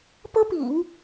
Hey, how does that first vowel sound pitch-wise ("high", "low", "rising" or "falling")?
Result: high